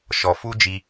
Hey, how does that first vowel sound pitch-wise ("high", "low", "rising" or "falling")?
low